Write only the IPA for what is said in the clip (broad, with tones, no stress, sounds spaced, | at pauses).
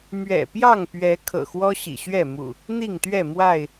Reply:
m ɥ ɛ̰˨˩ p j ɑ˥˨ ŋ p ɥ ɛ˨˦ kʰ ɤ̰˨˩ x w ɔ˦ ɕ ḭ˨˩ ɕ ɥ ɛ˥˨ m ṵ˨˩ | n̪ i˥˨ ŋ t̪ ɥ ɛ˥˨ m w a˥˨ ɪ̯